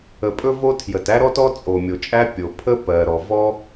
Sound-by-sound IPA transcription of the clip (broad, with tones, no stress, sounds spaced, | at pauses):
ə˩ pʼ ɵ˥ v o˥ tʰ j ə˩ t æ˥ ɾ ɔ˥ t ɔ˥ t͡sʼ o˩ mʲ o˩ t͡ʃʼ æ˥ pʲ o˩ pʰ ə˥ p ɜ˩ ɾ ɔ˩ v ɔ˥